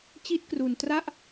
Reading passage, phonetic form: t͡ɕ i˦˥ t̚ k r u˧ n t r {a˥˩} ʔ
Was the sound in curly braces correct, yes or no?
yes